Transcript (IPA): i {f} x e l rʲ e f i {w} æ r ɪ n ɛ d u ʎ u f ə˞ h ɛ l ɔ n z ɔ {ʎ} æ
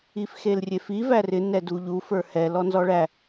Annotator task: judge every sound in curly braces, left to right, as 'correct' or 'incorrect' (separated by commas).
correct, incorrect, incorrect